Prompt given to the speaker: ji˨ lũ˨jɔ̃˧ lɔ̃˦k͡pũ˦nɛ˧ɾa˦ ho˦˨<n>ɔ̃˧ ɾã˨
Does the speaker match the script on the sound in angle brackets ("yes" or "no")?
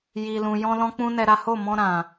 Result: no